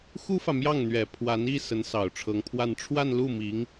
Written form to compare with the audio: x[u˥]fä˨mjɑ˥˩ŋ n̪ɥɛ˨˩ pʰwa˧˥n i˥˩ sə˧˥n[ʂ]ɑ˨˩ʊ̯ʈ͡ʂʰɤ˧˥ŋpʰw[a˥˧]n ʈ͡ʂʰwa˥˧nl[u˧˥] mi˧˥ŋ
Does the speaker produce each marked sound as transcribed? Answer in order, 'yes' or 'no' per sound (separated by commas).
yes, no, yes, no